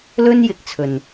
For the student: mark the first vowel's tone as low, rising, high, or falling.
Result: high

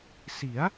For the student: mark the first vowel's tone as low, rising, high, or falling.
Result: rising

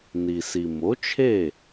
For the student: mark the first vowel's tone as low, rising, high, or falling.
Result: low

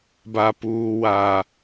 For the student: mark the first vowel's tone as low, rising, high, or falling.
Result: high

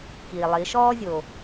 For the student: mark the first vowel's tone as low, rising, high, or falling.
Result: low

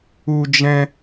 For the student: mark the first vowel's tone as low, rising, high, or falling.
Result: high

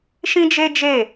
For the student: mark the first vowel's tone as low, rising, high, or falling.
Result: high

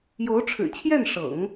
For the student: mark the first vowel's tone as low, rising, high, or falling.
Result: rising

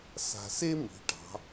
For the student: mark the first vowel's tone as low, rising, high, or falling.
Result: low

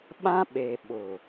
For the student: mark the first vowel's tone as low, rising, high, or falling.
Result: high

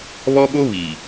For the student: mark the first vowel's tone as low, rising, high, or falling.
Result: high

